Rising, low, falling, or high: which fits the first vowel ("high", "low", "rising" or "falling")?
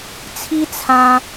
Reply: high